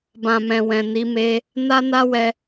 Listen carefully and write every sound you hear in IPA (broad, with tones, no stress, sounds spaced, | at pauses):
b ã˨ m ɛ̃˨ w ɛ̃˨ n i˨˦ m e˧ | n a˦ n a˦ w ɛ˧